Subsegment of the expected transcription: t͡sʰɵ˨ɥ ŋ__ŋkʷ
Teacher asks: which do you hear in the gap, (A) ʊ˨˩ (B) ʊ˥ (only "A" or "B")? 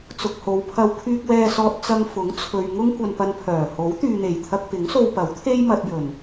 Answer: B